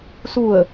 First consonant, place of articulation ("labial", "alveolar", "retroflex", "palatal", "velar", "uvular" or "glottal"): alveolar